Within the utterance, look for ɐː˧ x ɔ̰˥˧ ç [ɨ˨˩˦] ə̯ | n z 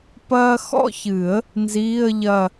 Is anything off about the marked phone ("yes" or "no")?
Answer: no